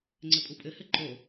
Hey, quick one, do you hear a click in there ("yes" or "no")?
yes